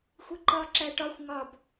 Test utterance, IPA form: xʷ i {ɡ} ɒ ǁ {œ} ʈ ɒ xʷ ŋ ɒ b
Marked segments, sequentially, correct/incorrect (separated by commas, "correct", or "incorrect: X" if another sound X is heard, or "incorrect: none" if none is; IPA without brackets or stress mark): incorrect: ǃ, incorrect: æ